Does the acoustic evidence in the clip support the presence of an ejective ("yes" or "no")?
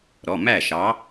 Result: no